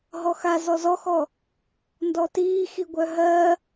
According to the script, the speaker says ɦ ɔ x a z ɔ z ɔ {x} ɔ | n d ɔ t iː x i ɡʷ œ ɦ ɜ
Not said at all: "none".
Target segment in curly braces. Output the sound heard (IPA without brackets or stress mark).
x